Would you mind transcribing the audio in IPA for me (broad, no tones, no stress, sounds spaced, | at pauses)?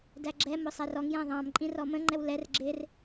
d æ ɡ͡ǁ ɛ m ʊ sˤ æ r ɔ ŋ j æ̃ ðˤ ɑ̃ m ǃʼ ĩ r ɔ m ə̃ ŋ͡ǃ ɛ w l ɛ r ɡ͡ǁ ɪ r